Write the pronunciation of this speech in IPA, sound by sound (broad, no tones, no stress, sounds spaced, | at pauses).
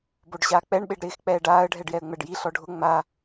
b o ɖ ɕ aː k͡p ɛ ɳ ɓ e ɖ ɾ ɪː x k͡p ɛː ɖ aː ə̯ ɖʱ ɛ ɖ j ɛ ə̯ ŋ͡m ɛ ɖ j i ɬ ɔ ɖʱ ʊ ŋ͡m a